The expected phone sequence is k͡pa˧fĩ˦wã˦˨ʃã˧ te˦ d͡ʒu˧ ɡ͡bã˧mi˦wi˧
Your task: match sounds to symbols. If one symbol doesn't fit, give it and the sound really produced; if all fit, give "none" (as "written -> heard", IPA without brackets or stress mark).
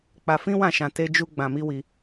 none